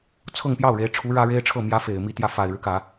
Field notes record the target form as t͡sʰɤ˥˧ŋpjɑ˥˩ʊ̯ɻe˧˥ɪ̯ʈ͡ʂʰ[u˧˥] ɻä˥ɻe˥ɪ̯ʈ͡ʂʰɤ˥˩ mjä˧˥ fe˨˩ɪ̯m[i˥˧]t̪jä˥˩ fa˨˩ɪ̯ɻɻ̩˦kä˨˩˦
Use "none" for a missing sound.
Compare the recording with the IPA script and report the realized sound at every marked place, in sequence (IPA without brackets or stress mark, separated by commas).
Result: u˧˥, i˥˧